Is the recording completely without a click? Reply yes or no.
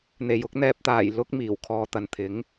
yes